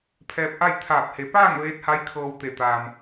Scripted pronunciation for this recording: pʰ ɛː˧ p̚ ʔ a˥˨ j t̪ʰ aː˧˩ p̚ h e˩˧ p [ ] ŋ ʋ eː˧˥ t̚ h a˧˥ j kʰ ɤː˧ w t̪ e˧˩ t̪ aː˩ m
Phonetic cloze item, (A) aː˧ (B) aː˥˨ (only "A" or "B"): B